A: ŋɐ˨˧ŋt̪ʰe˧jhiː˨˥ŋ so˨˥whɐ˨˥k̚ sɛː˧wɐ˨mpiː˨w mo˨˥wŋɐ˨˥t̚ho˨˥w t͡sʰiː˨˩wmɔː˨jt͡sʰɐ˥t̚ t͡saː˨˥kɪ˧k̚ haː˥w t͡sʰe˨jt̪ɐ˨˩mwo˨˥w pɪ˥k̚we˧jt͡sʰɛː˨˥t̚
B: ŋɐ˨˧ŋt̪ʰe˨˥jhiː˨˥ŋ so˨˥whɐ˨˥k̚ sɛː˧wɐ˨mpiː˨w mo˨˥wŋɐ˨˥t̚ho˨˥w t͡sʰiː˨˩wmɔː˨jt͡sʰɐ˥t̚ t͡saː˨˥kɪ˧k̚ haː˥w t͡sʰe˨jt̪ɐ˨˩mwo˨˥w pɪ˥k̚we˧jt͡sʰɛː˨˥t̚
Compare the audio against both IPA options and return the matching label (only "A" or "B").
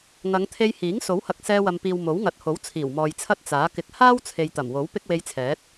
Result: A